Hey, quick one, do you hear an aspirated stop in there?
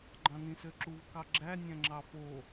no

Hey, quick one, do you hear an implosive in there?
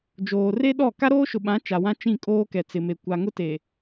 yes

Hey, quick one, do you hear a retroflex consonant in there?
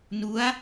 no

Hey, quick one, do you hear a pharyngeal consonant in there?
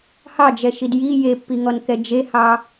no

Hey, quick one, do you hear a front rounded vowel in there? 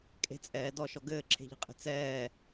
no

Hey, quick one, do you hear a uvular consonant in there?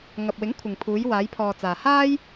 no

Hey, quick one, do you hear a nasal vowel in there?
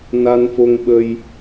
no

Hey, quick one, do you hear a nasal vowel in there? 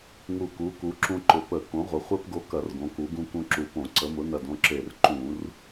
yes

